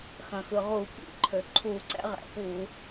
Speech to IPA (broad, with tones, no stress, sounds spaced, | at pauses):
x ɐ̃˩ x ɯ˩ ʁ u˧˩˧ p ḭ˧˩˧ ǃʰ ø˩ ǃʰ u˧˩˧ ǀ ɛ̰˩˥ ʁ ɛ̰˩ p u˧˩˧